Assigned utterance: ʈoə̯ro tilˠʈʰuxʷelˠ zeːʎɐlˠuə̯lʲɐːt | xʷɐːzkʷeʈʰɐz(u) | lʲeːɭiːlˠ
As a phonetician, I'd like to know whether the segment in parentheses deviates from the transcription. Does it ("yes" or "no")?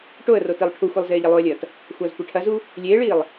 no